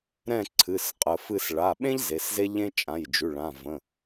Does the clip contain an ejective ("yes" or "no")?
yes